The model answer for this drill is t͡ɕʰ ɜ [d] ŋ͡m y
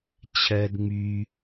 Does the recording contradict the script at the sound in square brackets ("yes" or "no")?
no